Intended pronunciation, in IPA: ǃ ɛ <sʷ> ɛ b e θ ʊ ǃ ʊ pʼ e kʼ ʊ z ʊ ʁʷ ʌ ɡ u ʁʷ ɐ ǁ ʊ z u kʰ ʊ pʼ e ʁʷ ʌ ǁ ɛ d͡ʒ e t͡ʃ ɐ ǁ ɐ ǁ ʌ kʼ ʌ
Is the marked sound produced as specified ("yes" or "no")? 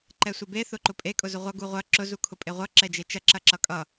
yes